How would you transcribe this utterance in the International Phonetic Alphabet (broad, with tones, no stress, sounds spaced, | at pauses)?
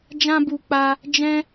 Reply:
d͡ʒ ã˦ b u˧ k͡p a˧ | d͡ʒ ɛ̃˦